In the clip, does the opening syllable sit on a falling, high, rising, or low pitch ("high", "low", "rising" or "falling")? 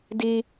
high